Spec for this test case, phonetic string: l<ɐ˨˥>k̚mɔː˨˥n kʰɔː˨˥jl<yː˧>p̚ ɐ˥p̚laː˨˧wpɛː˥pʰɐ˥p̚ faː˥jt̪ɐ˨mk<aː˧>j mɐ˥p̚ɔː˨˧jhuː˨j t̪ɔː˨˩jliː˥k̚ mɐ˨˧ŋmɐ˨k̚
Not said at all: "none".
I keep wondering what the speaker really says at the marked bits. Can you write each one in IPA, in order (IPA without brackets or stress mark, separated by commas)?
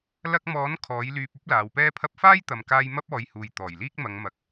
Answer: ɐ˧, yː˧, aː˧